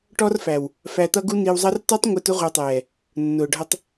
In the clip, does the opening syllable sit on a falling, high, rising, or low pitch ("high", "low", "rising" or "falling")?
high